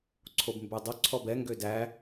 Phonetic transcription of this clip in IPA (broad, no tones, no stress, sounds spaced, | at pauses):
ǀʰ o b m b y dˤ o ǀʰ ɔ b ɛ ŋ ɡ ø d æ